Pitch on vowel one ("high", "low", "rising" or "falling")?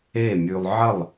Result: falling